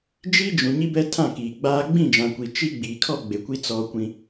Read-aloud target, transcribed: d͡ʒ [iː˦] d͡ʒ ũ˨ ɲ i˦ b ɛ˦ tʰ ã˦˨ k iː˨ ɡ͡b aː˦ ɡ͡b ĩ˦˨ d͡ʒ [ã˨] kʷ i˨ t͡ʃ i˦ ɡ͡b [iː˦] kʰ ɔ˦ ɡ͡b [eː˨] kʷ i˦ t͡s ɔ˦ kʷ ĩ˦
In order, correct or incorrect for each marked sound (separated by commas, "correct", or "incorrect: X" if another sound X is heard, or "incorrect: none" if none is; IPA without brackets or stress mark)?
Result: incorrect: i˦, correct, incorrect: iː˨, incorrect: e˨